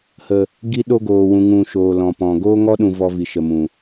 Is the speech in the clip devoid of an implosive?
no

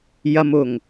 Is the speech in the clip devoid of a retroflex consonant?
yes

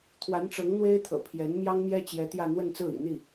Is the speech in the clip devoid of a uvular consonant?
yes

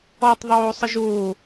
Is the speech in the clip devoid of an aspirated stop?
yes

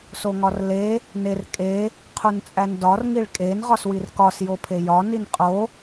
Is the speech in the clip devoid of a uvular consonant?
no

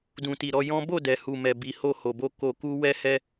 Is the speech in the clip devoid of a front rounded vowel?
yes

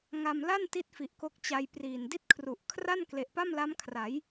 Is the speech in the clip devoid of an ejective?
yes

